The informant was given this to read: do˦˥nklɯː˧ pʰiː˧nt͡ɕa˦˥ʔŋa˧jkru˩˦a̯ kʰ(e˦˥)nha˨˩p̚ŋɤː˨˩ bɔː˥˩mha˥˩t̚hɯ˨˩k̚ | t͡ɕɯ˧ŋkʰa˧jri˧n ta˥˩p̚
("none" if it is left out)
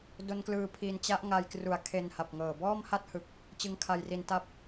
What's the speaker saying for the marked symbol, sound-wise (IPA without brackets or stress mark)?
e˧